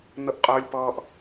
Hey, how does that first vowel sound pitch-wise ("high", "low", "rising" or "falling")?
high